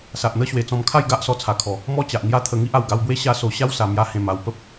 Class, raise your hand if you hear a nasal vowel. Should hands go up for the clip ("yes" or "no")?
yes